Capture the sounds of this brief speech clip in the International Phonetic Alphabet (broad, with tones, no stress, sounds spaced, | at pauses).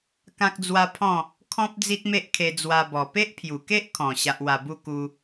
k ã˦ k̚ d͡z w a˦ pʰ ɔ̃˥˧ | kʰ ɔ̃˦ p̚ d͡z i˦ t̚ m e˦ ʔ kʰ e˧ d͡z w a˧ b ɔ˨˩ p e˦ ʔ pʰ j u˨˩ k e˦ ʔ kʰ ɔ̃˨˩ ɕ a˨ ʔ w a˨˩ b u˧ k u˧